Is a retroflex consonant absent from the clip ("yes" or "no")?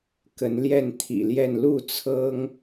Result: yes